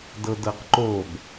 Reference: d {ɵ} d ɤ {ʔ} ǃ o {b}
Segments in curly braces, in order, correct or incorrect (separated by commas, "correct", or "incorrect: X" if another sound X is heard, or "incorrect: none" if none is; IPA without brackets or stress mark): incorrect: ɤ, incorrect: q, correct